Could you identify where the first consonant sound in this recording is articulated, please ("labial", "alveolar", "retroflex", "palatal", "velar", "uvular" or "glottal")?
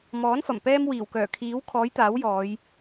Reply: labial